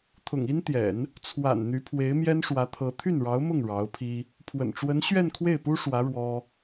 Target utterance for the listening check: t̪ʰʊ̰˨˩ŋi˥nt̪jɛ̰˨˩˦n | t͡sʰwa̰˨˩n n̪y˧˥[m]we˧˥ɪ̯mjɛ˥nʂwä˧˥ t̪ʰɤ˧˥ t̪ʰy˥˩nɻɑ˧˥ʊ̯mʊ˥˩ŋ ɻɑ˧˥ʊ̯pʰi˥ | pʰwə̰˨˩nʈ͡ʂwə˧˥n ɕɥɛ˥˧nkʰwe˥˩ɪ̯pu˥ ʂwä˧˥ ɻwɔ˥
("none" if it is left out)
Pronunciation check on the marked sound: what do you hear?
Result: pʰ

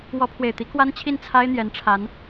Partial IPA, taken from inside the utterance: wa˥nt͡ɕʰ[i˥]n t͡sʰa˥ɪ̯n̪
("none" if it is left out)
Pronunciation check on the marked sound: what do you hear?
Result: i˥˩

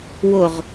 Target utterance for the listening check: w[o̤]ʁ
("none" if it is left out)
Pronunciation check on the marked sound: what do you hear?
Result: o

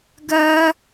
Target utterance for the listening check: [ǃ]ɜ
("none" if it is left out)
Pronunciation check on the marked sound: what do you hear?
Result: ɡ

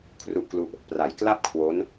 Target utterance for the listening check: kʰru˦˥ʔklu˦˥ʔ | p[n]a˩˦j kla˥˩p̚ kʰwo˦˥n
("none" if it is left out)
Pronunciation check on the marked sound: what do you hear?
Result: r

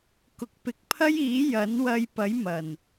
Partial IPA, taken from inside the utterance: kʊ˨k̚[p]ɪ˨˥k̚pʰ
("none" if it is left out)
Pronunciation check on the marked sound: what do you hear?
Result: p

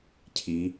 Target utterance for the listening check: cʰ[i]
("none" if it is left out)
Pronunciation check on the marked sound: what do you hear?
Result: i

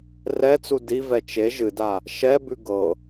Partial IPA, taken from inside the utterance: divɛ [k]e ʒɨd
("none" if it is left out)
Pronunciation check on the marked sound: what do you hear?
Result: t͡ʃ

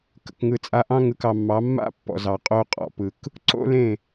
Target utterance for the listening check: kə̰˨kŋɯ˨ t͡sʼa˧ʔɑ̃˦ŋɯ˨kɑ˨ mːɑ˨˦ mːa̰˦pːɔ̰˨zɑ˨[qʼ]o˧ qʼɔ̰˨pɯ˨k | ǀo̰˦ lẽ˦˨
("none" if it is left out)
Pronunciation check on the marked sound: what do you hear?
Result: qʼ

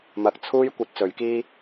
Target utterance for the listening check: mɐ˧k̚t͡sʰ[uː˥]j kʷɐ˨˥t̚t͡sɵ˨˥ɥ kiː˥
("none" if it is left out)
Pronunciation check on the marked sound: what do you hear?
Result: uː˥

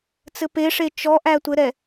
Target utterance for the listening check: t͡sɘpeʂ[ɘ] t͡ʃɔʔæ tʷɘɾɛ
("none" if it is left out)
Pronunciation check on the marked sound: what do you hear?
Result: e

